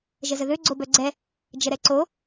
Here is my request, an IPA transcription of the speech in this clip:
ʒ ə z ə ð ø ɡ͡ǀ o b œ ɡ͡ǀ ɛ | d͡ʒ ə ɾ ɛ ǀ o

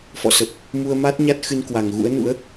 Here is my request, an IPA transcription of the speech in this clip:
f ɔ̰˧˨ s ə˨˩ p̚ | m u˧ ə̯ m a˦˥ t̚ ɲ a˦˥ t̚ x ɨ˧ n k w a˨˩ ŋ ɣ ṵ˧˥ ə̯ n ṵ˧˥ ə̯

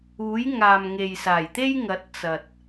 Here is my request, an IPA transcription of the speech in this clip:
uː˨˥ j ŋ aː˨ m ŋ e˨ j s aː˨˩ j t̪ e˥ j ŋ ɐ˨˥ t̚ t͡s ɐ˨ t̚

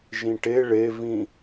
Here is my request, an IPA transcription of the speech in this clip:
ʒ ĩ ʈ e ɭ e v ĩ

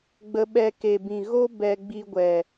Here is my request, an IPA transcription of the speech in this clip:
ɡ͡b ə˧ ɓ ɛ˧ k e˨ b ĩ˨ ɣ o˦ b ɛ˧ ɡ͡b i˧ ɡʷ ɛ˨

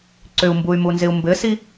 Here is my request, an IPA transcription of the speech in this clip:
ǀ ʏ u̯ m b u y̯ m u n z ɪ u̯ m b ɘ s i

